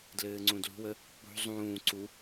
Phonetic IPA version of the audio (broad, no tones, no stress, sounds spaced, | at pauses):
d l ɘː ŋ͡ǀ ũ d l ṳ w ə | k͡p ṳ zˤ ũː ǀ u